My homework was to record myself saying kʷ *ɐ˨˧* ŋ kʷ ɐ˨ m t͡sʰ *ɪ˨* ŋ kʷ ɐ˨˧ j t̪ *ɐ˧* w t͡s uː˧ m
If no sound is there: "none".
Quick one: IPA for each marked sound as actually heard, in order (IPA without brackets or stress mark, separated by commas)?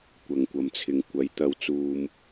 ɐ˨, ɪ˨, ɐ˧